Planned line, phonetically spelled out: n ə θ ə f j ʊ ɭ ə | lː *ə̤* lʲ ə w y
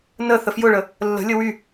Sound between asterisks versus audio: correct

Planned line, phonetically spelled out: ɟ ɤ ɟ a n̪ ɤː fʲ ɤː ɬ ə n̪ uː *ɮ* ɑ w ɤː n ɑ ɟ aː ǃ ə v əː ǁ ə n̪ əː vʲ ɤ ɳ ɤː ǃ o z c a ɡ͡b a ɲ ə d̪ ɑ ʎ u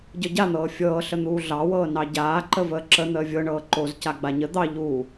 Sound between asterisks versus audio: correct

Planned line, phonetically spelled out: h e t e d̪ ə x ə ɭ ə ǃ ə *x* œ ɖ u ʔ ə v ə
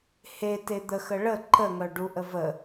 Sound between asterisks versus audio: incorrect: ŋ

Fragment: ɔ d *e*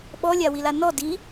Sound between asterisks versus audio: incorrect: i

